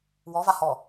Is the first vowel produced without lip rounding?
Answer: no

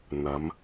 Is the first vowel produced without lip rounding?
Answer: yes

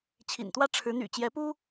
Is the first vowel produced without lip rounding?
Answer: yes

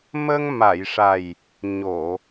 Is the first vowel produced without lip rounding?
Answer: yes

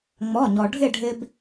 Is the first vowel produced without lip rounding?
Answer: no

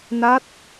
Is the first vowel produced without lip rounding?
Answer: yes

